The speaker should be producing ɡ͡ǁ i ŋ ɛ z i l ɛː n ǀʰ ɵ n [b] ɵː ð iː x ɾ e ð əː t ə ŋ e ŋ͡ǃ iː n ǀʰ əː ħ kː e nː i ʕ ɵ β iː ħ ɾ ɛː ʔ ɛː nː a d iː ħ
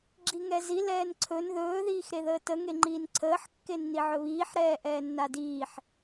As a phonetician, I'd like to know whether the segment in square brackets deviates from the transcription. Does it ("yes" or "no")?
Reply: yes